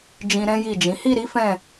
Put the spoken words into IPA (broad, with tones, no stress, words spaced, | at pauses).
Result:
d͡ʒĩ˧ɾɛ̃˦ji˦˨d͡ʒĩ˨˦ hi˦˨ɾi˨˦ fɛ̃˦˨